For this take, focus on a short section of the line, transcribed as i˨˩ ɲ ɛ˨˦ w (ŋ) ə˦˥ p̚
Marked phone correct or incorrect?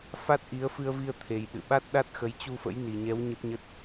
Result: incorrect